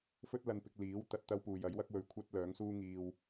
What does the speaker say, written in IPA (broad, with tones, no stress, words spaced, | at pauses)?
fɵ˥t̚lɐ˧npɪ˧k̚ liː˨˥w t̪ɐ˧t̚t̪ɐ˥wpuː˨j ɐ˨˥jwɐ˥k̚wɵ˧ɥ kʷʰɐ˥t̚lœː˨˥ŋsuː˥ŋiː˧w